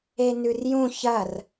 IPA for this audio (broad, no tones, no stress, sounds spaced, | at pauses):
e n ʉ r j ũ ç ɐ r